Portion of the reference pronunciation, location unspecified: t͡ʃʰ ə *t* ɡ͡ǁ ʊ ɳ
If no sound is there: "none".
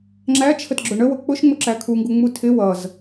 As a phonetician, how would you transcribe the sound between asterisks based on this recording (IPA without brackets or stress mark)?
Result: t